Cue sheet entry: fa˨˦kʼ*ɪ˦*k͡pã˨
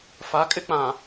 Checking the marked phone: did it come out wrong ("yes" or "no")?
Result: no